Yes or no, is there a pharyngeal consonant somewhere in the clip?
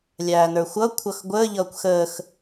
no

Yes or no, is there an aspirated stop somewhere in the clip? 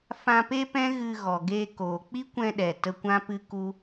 no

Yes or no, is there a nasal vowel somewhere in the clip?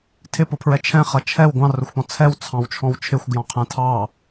yes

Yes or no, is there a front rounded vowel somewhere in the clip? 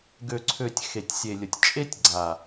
yes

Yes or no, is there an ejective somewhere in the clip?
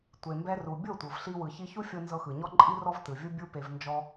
yes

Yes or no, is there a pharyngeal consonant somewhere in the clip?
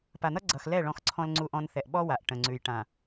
no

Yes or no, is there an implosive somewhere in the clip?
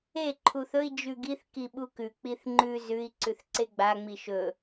yes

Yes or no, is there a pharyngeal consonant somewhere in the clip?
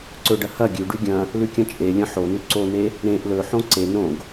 yes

